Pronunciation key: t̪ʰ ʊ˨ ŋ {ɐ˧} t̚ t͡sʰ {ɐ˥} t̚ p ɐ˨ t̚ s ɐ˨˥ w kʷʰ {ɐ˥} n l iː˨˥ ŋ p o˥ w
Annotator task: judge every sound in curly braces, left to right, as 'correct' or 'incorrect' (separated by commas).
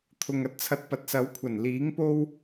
incorrect, incorrect, incorrect